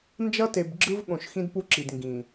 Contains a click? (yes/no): yes